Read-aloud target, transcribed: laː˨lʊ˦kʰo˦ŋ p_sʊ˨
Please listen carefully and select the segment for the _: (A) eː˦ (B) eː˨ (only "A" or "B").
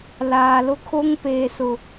B